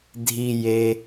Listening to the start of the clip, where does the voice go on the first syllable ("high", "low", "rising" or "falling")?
low